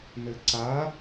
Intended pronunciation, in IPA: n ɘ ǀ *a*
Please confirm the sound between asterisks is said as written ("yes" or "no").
yes